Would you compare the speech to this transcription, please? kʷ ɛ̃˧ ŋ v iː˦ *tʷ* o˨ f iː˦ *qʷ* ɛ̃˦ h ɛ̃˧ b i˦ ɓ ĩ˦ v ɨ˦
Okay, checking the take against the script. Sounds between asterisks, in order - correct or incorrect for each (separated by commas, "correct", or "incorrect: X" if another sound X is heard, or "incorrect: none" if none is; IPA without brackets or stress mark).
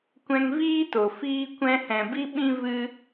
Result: incorrect: t, incorrect: kʷ